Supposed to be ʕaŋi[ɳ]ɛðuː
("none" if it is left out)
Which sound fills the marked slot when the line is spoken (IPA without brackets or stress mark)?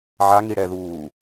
ɽ